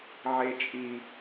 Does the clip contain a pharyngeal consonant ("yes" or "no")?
yes